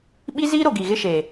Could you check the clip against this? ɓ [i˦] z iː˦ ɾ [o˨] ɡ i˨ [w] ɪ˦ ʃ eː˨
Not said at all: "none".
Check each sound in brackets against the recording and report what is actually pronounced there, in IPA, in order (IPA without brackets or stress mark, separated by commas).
i˦, o˨, ɣ